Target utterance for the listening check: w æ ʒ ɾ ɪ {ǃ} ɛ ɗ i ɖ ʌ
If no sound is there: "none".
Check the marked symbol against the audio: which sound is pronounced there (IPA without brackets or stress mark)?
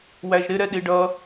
ɾ